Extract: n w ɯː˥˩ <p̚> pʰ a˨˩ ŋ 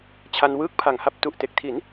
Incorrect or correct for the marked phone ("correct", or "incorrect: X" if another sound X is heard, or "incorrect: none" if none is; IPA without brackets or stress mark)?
incorrect: k̚